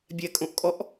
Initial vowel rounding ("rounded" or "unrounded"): unrounded